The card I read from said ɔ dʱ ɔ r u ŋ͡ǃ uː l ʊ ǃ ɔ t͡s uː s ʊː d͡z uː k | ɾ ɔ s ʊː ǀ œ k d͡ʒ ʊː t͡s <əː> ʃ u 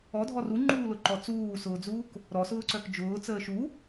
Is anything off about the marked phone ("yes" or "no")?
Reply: no